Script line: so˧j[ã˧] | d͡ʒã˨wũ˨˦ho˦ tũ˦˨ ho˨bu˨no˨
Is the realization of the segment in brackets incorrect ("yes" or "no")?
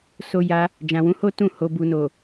yes